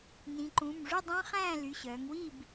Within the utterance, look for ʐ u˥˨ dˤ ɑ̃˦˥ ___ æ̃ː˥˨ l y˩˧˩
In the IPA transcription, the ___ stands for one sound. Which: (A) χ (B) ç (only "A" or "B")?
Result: A